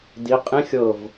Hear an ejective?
yes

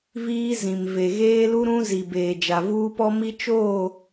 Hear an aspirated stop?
no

